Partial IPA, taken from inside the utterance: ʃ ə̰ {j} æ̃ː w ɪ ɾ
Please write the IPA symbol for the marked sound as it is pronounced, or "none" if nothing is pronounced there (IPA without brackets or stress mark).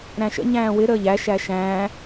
ɲ